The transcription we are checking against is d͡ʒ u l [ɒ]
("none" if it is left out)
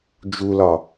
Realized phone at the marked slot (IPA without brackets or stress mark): ɒ